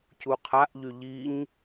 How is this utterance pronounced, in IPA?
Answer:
c u qʰ a ʔ ʎ y ʎ i ɲ

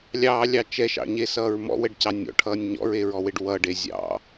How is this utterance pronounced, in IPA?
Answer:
lʲ ɑː lʲ ɑ t͡ʃ ɛ ʃ ɑ̰ ɲ e s ʌː ɹ m ɔ̰ w ɛ ɖ c ɑ nʲ ɔ̰ ʈʰ ʌː nʲ ɲ ɔ̰ ɹ e ɹ ɔ w e ɖ w ʌ ɖ e zʲ ɑ̰

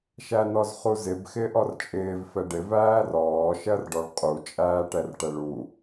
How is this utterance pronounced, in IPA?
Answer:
ʃ æ n ɔ z χ u z ɪ b x ɪː ʔ ɔ r t͡ʃʼ ɪː v f ɛ ɖ ɪ v æː r ɔː ʃ ɜ r ɖ ɔ ɭ qʼ u t͡ʃʼ æː ʈ ɛ r ʈ ɛ ɭ u

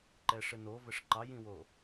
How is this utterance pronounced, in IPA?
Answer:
ǃ ɛ ʂ ɘ n o v ɘ ʂ ǃ ɑ j ĩ w o

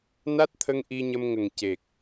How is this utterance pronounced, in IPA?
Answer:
n a˦˥ t̚ t̪ʰ ə˧ ŋ ʔ i˧ ɲ ə˧ m ŋ ə˨˩ ŋ c e˨˩ k̚

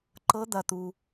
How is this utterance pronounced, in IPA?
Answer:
ǃ ɤ˦˥ d̪ ɐ˧ t̪ u˧

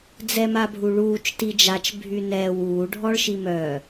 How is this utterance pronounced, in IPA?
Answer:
d͡z ɛ m a bʱ u ɭ uː t͡ʃ t i d͡ʒ a t͡ʃ bʱ y n ɛ w uː ɖʱ ɔ ɭ ʃ i m œː

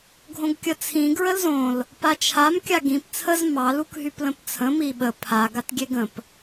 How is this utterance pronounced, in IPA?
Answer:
ɡʱ õ ɡ kʲ ə t͡sʰ ĩ ɡ ɹ ə l z õ l | p a t͡ʃʰ a m kʲ a ɡ ĩ p t͡sʰ ə z m ɑ l u k ɦ y p l ə̃ p t͡sʰ ə̃ m i ɓ ə pʰ a ɡ a t ɡʲ e ɡ ə̃ p

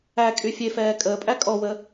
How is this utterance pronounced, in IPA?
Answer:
æ kʼ y fʲ e f ɛː kʼ əː pʼ æ kʼ ɔ w ə

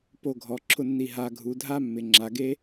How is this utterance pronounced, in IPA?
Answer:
p o˧˩ ɡʱ ɔ˩˧ ǁʰ ʊ˧ nː i˧˩ ɦ a˧ ɡʱ u˩˧ dʱ a˥ mː ɪ˩˧ ŋ͡ǁ a˩˧ ɡ e˥

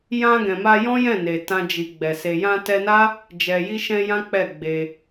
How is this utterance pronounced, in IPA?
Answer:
j ã˧ ɡ ɛ̃˨ m a˧ j ɔ̃˦ j ɛ̃˦˨ n e˨ t ã˧ d͡ʒ i˨ ɡ͡b ɛ˨ s e˨ j ã˧ t ɛ˧ n a˦ | d͡ʒ ɛ˨ j i˧ ʃ ɛ̃˧ j ã˦ k͡p ɛ˦˨ ɡ͡b e˧

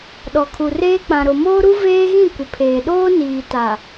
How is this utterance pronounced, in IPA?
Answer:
ɗ ɔ˨ kʰ u˨ r eː˦ k͡p ã˨ ɾ ʊ˨ m oː˦ ɾ u˦ v eː˦ ɣ ĩ˦˨ kʷ ɪ˨ pʰ eː˨ ɗ oː˦ n iː˨ t a˨

